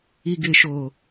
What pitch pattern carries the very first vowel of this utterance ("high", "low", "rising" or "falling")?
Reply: low